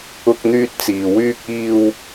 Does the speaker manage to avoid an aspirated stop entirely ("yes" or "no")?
yes